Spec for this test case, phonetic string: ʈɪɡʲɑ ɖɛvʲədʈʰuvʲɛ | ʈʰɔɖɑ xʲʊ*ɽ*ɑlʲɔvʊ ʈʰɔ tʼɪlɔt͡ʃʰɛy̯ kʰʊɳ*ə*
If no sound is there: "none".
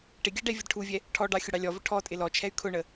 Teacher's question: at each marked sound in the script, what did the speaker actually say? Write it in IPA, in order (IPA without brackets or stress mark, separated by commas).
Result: ɽ, ə